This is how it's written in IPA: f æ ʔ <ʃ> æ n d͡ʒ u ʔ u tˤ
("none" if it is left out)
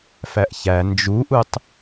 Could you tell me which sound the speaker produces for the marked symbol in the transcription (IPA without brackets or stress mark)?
ç